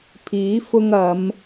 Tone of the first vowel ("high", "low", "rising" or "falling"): rising